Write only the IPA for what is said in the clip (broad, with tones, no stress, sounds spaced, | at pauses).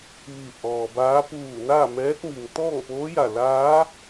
ʋ i˧˩ ʔ ɔː˩ b aː˧˥ p uː˧˩ n aː˥˨ m ɛː˧˥ t̚ m i˩ ŋ t̪ ɔː˥˨ ŋ p oː˧˥ j a˧˩ l aː˧˥